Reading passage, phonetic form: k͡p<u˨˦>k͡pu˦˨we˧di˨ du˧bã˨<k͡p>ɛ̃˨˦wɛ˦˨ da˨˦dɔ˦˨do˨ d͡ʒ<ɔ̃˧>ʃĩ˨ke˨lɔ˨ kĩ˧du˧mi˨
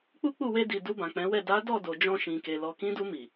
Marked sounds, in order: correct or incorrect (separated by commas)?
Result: incorrect, correct, correct